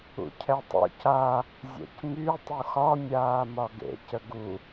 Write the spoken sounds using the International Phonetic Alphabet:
ṵ cʰ ɛ tˤ ṵ c a | zʲ ɛ̰ c m y tˤ u x ɒ mʲ aː m ɒ ɡ ḛ c ə ɡ u

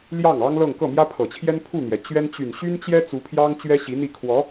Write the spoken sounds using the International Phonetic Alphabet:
l j ɑ˥˩ ŋ ɑ˥ ŋ l ɤ˥˧ ŋ k ɤ˥˩ m j ä˥ pʰ ɤ˨˩ t͡ɕʰ j ɛ˥ n pʰ u˥˩ n̪ j ɛ˩ t͡ɕ ɥ ɛ˥ n t͡ɕ y˨˩ n ɕ y˥ n t͡ɕ j ɛ˥ t͡s u˧˥ pʰ j ɑ˥ ŋ t͡ɕ ɥ ɛ˥ ɕ i˧˥ n̪ i˥˩ kʰ w ɔ˧˥

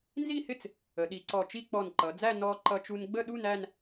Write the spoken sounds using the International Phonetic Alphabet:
n z i˥˧ h ɪ˥˧ t͡s | ə˩˧ ɗ i˩˧ ǀ ɔ˧˩ t͡ʃ i˥˧ k͡p ɔ˧˩ n ǃ ʌ˩˧ d͡z æ˥˧ n ɔ˧ ǃ ʌ˧ t͡ʃ u˧ n ɡ͡b ə˥˧ ɗ u˥˧ n æ˥˧ n

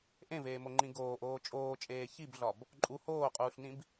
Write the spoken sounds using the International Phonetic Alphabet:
ʔ ẽ v eː m o ŋ͡ǃ ĩ ɡ oː ʔ oː t͡ʃʼ oː t͡ʃʼ eː ç i b ɮ ɒ b | ǃʼ u h oː qʼ uː ɬ n ĩ b

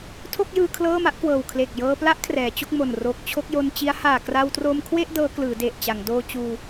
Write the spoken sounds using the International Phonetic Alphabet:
tʰ o˥˩ k̚ j ɯː˧ kʰ l ɤː˥˩ m a˦˥ ʔ k w ɤː˨˩ w kʰ l e˨˩ k̚ j ɤː˧ p l a˦˥ ʔ kʰ r ɛː˩˦ t͡ɕ o˥˩ k̚ m o˨˩ n r o˨˩ k̚ t͡ɕʰ o˥˩ k̚ j o˧ n t͡ɕ i˦˥ a̯ h aː˨˩ k r a˧ w t r oː˧ m kʰ w e˥˩ ʔ d ɤː˦˥ k l ɯː˩˦ d e˨˩ ʔ t͡ɕ a˩˦ ŋ d oː˧ t͡ɕ uː˧

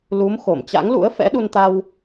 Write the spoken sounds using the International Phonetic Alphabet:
l u˨˦ m x o˧˩ m t͡ɕ a̰˧˥ ŋ l ṵ˧˥ ə̯ f ɛ̰˧˥ ɗ u˧ n t̪ a˧ w

